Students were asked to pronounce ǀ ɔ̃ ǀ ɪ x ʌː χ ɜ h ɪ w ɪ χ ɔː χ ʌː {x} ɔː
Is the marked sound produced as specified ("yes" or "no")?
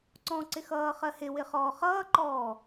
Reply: no